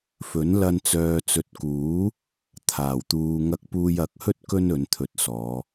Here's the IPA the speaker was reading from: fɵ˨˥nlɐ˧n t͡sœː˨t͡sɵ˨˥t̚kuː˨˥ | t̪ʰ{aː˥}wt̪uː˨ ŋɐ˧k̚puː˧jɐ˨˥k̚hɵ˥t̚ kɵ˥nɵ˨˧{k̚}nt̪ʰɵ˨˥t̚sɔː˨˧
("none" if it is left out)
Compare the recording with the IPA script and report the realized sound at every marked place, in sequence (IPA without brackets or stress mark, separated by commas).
aː˨˩, none